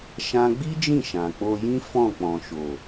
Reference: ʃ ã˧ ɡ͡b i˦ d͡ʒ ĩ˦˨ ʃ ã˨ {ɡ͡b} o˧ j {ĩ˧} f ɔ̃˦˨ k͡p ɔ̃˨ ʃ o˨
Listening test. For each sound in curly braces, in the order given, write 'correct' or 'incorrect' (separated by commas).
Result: incorrect, incorrect